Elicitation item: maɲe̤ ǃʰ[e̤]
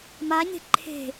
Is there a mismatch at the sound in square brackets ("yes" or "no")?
no